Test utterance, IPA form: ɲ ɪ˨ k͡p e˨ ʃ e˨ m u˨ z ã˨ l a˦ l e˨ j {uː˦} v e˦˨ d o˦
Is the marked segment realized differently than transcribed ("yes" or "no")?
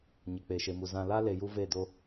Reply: yes